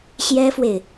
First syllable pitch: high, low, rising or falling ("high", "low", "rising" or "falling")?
high